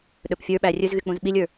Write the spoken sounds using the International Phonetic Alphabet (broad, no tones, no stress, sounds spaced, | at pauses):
ɗ ɵ p fʲ ə˞ ɓ æ rʲ ɵ z ɣ y k͡p ũ z ɓ i lʲ ə˞